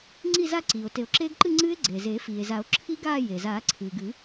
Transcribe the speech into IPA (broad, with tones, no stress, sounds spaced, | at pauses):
ŋ͡ǀ i˥˧ z a˥˧ ǀ iː˩ o̯ t e˨˩˦ o̯ ǁ eː˦˥ ɡ ǃ ɨ˥˧ ŋ͡ǀ ɨː˦˥ e̯ ɡ͡ǀ eː˩ z eː˨˩˦ f iː˩ e̯ z a˨˩˦ o̯ ǁʰ i˦˥ ɡ aː˥˧ j e˩ z aː˨˩˦ ǀʰ ɨː˩ ɡ ɨ˨˩˦